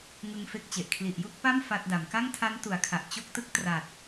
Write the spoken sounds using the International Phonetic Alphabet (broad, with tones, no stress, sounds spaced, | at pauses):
ŋ ɯ˧ ŋ f e˥˩ k̚ t͡ɕ e˨˩ ʔ kʰ l i˨˩ ʔ j u˥˩ k̚ p a˥˩ m f a˥˩ t̚ d a˩˦ m k a˥˩ ŋ tʰ a˦˥ n t u˩˦ a̯ kʰ a˨˩ ʔ t͡ɕ o˦˥ k̚ t ɯ˦˥ k̚ t r a˨˩ t̚